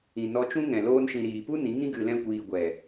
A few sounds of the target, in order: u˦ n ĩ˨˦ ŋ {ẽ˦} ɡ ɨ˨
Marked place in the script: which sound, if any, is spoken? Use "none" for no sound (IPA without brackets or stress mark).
ĩ˦